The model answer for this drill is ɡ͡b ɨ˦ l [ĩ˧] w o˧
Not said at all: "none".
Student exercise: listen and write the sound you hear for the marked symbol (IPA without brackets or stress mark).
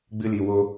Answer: i˧